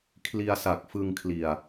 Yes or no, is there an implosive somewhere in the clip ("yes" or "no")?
no